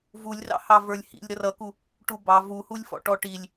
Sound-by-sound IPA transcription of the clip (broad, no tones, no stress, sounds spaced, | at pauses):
v u lʲ r ɑ̰ h ɑ v ə˞ lʲ h ḭ lʲ ɾ ʌ r ʌ k u | ʈ u b ɑ v u h u lʲ f ɔ̰ ʈ ɔ ʈ i lʲ